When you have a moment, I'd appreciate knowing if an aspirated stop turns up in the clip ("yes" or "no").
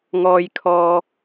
yes